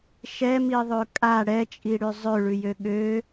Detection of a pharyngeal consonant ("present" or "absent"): absent